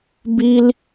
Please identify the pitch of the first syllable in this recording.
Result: high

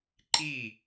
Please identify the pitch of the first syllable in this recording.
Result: falling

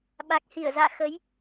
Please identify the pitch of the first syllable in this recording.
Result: low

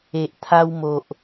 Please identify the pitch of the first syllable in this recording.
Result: low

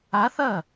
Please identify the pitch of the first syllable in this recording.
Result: rising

